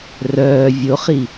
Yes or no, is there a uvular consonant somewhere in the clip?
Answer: yes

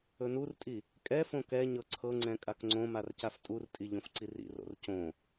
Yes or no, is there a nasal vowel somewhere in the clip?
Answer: yes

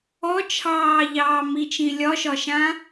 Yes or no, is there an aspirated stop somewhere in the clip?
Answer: yes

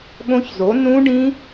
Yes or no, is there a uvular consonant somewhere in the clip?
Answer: no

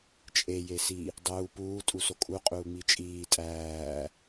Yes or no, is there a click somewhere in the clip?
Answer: no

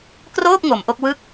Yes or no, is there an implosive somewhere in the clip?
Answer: no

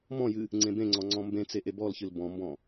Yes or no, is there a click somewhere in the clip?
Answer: yes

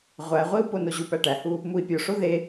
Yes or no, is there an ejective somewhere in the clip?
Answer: no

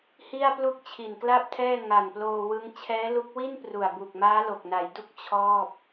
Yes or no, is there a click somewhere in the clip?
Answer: no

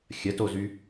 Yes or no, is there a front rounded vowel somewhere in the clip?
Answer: yes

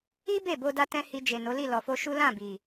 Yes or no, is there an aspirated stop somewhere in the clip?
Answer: no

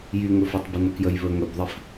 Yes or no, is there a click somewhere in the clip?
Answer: no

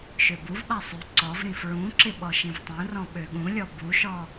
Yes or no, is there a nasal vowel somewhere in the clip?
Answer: yes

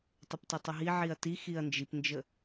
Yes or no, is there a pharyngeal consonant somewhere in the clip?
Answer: yes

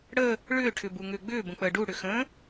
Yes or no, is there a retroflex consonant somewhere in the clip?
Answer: yes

